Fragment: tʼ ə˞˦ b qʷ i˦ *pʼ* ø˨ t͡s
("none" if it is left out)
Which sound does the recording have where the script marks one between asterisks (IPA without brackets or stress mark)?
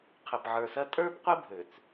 bʱ